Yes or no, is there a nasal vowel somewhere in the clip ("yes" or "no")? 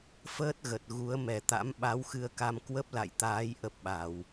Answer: no